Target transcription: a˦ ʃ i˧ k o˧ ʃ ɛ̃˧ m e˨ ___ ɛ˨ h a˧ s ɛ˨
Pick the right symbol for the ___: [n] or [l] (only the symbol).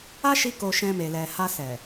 l